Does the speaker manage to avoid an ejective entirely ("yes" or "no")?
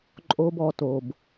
no